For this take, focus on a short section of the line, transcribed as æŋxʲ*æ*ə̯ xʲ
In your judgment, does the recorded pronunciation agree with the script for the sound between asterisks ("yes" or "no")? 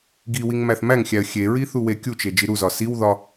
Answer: yes